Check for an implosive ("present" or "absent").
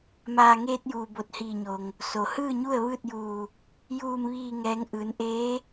absent